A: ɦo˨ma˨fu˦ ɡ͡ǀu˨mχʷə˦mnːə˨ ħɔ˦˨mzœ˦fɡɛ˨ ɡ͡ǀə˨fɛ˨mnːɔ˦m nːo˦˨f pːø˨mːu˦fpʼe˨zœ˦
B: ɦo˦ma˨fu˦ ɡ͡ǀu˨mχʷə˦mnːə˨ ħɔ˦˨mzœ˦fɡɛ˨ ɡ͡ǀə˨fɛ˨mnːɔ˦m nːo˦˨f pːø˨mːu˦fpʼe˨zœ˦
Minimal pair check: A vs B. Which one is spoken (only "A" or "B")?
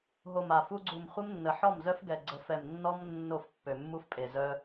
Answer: A